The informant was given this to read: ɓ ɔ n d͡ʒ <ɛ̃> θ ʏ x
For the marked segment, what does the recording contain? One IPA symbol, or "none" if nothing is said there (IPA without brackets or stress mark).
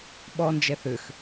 ɛ